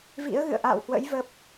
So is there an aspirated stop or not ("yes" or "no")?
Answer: no